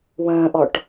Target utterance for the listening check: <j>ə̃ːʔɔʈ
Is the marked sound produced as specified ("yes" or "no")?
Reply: no